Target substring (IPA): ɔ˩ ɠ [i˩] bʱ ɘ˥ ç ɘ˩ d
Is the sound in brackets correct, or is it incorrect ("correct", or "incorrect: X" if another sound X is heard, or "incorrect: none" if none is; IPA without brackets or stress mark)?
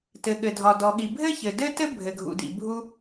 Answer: correct